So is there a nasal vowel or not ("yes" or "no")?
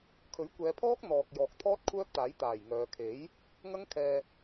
no